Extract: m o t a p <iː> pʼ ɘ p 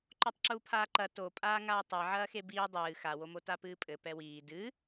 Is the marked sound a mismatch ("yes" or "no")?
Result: yes